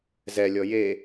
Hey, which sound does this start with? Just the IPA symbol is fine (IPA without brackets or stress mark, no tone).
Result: z